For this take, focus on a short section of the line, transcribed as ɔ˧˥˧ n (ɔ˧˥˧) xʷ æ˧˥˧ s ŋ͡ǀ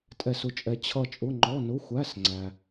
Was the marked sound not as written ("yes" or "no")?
yes